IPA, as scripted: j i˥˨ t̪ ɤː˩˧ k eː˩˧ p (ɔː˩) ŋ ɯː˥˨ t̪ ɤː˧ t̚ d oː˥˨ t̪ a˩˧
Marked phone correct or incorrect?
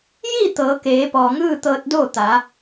correct